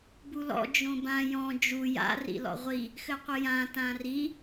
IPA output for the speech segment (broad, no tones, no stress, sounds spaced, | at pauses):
b u l ɔ̰ d͡ʒ õ b ã j ɔ̃ d͡ʒ u j a̰ r ḭ l ɔ̰ ʁʷ i | x ɘ qʷ ɘ j ã t ã r i